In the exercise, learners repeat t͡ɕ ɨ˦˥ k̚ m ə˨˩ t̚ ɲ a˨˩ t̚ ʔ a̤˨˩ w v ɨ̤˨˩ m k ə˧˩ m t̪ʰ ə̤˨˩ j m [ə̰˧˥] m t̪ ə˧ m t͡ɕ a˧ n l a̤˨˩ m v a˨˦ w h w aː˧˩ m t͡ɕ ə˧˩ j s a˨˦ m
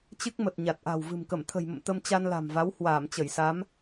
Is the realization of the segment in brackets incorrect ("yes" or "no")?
yes